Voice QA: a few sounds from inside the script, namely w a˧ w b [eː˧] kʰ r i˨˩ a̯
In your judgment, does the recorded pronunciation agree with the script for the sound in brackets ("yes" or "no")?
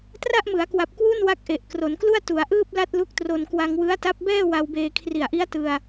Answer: yes